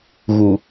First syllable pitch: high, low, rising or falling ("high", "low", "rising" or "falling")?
low